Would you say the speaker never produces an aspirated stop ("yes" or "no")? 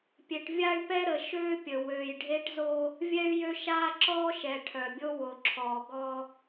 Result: no